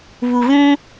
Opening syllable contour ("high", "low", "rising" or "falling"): low